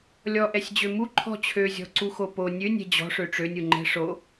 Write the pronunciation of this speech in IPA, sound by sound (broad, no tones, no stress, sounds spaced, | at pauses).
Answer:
lʲ ɔ ʔ ɛ sʲ d͡ʑ ø m u ǃʰ ɔ̤ t͡ɕʰ ø zʲ ɔ̤ ǀ u x o p o nʲ ø nʲ ɛ̤ d͡ʑ ɔ̤ ʂ ø ʈ͡ʂ ø nʲ u ŋ͡ǃ ɛ̤ ʂ o